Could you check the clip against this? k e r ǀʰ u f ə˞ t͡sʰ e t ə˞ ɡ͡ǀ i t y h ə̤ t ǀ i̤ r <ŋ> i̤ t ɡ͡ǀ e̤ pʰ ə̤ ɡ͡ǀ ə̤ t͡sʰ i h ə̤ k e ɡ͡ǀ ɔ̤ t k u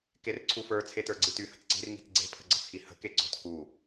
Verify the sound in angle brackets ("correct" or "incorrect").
correct